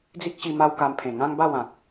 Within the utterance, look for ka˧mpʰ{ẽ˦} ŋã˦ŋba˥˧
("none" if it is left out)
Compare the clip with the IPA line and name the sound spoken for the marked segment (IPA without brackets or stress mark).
ẽ˨˩